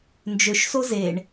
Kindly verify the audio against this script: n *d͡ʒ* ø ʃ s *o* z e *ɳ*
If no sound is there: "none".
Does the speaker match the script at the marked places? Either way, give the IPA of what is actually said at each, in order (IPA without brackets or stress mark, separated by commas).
d͡ʒ, o, ɳ